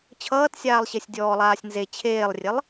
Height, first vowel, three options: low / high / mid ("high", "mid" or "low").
mid